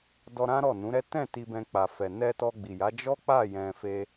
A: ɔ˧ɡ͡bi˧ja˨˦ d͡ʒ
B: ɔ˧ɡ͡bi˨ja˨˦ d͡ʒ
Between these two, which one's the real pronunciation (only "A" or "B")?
B